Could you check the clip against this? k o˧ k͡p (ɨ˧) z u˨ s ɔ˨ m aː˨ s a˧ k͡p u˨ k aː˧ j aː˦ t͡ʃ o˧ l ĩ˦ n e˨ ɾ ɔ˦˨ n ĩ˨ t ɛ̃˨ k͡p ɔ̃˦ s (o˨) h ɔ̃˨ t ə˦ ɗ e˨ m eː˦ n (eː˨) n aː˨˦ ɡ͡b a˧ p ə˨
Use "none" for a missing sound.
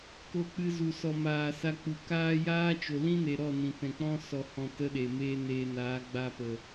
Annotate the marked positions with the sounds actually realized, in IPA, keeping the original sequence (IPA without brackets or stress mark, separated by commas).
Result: ɨ˧, ɔ˨, eː˧